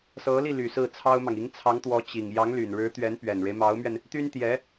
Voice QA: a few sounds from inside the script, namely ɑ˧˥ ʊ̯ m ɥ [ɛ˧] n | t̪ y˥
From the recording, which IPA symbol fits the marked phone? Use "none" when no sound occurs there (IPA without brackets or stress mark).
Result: ɛ˧